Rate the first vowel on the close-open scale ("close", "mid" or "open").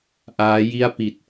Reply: open